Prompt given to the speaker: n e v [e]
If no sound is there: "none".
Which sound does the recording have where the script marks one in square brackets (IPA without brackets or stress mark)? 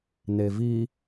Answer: i